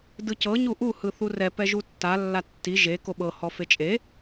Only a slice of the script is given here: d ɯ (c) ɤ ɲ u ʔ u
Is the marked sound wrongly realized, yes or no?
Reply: no